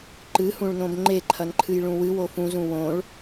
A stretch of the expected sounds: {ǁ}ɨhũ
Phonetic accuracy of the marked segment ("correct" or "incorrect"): incorrect